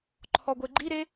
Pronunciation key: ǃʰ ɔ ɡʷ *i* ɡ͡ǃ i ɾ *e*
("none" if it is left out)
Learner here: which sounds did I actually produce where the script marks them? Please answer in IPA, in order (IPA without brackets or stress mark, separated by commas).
e, e